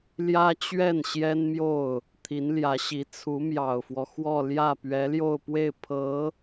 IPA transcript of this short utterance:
l j ä˥ t͡ɕ ɥ ɛ˥˩ n ɕ j ɛ˥ n m j o˥˩ ʊ̯ | t̪ʰ i˧˥ n l j ä˧˥ ɕ i˧˥ t͡sʰ u˧˥ m j ɑ˨˩ ʊ̯ f w ɔ˦ x w ɔ˥˧ l j ä˥˩ p ɥ ɛ˧˥ l j o˥˧ ʊ̯ p w e˥˩ ɪ̯ pʰ ɤ˧˥

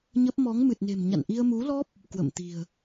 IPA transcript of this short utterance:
ɲ ə˦˥ p̚ m ɔ˨˦ ŋ m ɨ˨˩ t̚ n e̤˨˩ m ɲ a̰˧˨ n ʔ i˧ ə̯ m u˨˦ l ɔ˦˥ p̚ | k w ə̰˧˨ m t̪ i̤˨˩ ə̯

